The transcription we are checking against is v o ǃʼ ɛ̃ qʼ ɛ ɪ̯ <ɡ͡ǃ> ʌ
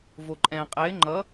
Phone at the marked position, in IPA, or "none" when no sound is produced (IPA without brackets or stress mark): ŋ͡ǃ